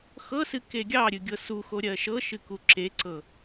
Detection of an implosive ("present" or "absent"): absent